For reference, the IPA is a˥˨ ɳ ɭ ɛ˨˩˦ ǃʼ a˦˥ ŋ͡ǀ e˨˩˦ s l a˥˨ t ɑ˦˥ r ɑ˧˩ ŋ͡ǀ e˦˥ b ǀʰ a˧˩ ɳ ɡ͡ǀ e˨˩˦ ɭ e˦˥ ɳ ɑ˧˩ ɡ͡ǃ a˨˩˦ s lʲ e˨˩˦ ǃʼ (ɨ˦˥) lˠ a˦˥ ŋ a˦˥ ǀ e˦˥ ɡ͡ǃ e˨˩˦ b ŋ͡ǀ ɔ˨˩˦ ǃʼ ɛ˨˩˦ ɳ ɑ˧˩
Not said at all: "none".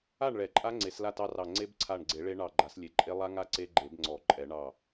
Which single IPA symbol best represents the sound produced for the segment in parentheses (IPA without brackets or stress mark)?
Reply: e˦˥